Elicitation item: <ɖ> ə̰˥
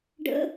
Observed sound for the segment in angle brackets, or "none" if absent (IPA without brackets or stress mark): ɖ